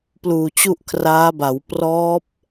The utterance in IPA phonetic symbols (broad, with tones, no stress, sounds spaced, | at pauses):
p l uː˨˩ t͡ɕ u˥˩ ʔ kʰ r aː˦˥ b a˩˦ w p r ɔː˦˥ p̚